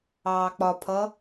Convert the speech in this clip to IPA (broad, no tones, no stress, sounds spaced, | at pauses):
ɑː k͡p ɒ pʰ ʌ